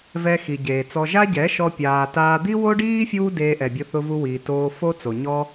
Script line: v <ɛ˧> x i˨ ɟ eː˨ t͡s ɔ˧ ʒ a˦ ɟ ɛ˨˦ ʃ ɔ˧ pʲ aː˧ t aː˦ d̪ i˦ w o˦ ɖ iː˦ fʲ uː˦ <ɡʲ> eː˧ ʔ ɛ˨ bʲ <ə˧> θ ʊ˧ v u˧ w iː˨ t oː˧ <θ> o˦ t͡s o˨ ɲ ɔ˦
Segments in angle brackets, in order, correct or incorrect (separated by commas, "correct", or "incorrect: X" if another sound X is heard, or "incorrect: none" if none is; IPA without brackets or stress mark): correct, incorrect: d, incorrect: ʊ˧, incorrect: f